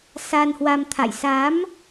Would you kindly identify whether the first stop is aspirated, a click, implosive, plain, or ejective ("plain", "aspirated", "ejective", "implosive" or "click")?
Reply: aspirated